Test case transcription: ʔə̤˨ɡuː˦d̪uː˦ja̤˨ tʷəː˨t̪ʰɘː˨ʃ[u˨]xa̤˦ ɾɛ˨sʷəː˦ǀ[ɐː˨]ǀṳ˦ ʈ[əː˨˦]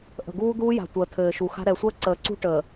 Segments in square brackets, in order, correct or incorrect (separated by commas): correct, incorrect, incorrect